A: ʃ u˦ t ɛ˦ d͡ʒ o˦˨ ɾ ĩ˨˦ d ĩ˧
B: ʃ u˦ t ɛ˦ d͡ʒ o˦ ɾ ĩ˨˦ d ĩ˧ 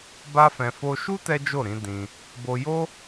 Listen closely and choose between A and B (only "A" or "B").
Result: A